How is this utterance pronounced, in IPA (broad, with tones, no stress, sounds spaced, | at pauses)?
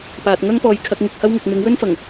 p aː˨ t̚ ŋ ɐ˥ ŋ p ɔː˨˧ j kʰ ɐ˨˥ k̚ ŋ ɪ˨˥ k̚ h ɐ˥ w ŋ ʊ˨ k̚ m ɪ˨˥ ŋ w ɵ˥ n f ɐ˨˩ ŋ